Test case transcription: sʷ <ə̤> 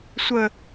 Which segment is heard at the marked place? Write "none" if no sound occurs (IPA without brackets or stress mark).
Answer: ə